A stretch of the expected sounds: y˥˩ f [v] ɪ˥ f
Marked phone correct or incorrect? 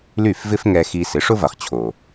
correct